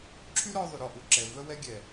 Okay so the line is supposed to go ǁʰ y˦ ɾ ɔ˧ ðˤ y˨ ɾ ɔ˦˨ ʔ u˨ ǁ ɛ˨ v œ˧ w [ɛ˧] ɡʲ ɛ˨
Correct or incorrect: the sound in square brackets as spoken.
correct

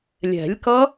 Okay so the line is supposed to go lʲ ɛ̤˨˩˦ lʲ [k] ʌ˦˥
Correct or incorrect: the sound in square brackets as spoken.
correct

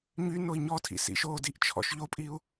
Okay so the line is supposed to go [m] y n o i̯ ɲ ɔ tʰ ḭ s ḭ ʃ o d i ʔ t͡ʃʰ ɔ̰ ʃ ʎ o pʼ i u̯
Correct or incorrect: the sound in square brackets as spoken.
incorrect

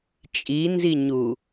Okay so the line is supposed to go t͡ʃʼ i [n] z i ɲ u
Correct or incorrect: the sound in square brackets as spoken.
correct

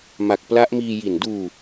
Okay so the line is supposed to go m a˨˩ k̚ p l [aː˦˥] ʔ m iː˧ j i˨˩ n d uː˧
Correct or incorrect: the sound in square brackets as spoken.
incorrect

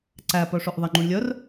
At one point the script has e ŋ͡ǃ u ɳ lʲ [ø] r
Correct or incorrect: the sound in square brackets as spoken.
incorrect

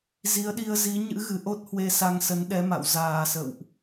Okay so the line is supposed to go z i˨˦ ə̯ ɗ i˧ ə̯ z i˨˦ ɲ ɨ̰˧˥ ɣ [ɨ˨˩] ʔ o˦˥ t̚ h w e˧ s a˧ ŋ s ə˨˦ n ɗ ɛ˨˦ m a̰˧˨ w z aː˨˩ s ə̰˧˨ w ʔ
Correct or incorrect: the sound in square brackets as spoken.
correct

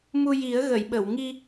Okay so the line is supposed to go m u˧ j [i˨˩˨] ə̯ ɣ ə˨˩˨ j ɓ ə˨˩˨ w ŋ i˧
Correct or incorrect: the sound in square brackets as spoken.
incorrect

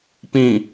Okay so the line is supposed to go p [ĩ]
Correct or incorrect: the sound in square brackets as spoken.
correct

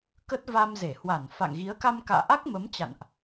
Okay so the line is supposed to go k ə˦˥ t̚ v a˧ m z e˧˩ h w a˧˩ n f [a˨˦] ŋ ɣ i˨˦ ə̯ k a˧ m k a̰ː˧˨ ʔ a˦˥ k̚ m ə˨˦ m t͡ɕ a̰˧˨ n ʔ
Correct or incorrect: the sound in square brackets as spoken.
incorrect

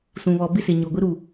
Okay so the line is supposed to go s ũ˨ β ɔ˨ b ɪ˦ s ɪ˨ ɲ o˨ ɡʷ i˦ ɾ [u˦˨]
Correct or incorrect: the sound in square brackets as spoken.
correct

